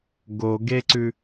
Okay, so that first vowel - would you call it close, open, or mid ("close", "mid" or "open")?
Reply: mid